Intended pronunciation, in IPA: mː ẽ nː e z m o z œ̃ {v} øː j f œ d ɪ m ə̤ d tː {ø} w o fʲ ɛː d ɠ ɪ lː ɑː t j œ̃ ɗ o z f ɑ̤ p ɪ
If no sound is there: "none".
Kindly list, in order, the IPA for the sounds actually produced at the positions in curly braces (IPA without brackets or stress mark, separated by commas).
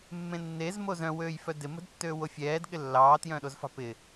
w, øː